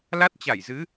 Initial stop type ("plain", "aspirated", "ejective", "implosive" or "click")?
plain